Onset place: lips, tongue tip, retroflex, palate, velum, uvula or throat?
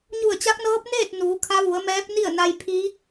palate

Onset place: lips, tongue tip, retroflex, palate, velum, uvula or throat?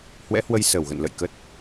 throat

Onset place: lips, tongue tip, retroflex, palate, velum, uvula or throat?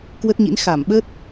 velum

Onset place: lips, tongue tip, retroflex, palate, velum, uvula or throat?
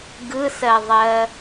velum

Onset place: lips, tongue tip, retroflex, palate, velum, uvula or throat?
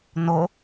tongue tip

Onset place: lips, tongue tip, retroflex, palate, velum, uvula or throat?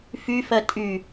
lips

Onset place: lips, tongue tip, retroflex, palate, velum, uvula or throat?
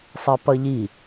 tongue tip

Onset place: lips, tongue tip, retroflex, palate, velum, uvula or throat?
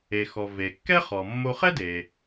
velum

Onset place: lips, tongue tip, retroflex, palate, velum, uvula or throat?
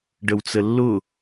retroflex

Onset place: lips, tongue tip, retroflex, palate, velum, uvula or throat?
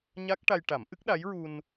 palate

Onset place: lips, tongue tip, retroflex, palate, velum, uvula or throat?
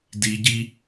tongue tip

